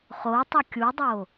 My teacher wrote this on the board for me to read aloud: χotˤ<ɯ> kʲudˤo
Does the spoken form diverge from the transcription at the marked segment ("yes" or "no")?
no